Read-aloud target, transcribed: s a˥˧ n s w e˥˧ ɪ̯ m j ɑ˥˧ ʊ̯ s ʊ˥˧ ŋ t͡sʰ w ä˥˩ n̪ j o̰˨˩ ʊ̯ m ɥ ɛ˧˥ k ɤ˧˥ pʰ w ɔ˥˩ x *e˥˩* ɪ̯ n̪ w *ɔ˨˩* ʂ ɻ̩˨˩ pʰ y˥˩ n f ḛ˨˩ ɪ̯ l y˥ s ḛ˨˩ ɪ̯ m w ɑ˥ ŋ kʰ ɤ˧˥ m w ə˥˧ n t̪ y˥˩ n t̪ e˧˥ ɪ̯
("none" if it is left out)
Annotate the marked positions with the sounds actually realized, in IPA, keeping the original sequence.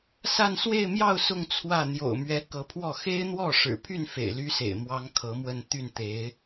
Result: e˥, ɔ˥˩

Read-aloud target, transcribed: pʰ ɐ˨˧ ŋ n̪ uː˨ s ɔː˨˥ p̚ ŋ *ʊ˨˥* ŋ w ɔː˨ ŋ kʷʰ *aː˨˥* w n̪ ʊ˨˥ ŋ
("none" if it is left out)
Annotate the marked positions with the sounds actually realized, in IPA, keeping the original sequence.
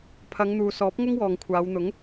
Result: ʊ˥, aː˨˧

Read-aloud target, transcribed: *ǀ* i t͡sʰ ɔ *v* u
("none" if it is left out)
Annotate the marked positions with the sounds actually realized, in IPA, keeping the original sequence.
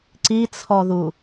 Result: ǀ, ð

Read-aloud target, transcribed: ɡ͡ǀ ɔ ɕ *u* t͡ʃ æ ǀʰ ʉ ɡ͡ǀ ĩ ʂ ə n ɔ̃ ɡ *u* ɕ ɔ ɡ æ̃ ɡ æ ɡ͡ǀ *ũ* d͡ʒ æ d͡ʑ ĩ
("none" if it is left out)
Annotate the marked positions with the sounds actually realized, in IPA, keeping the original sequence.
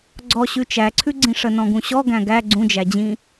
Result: ʉ, ũ, ũ

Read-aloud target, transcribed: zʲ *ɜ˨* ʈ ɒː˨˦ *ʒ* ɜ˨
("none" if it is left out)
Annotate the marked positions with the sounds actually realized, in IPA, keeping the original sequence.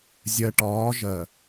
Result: ɜ˨, ʒ

